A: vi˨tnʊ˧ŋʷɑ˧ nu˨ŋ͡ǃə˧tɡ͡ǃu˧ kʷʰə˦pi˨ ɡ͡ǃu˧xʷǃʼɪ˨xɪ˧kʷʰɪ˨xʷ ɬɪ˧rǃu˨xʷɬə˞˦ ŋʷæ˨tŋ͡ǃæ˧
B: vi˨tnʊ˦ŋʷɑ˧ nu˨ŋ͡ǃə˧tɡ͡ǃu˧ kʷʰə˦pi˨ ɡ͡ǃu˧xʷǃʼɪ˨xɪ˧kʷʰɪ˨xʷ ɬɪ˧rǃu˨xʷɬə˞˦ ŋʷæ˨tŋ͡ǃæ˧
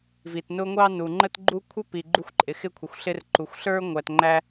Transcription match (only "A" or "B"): A